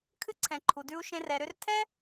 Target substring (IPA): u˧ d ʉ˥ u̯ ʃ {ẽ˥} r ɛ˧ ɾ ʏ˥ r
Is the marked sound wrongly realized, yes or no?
no